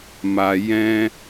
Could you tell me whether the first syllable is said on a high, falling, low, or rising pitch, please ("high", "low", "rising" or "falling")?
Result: low